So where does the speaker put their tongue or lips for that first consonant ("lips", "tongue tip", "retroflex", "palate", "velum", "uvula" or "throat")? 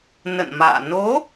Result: tongue tip